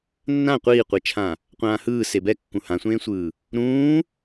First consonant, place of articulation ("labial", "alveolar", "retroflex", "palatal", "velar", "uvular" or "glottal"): alveolar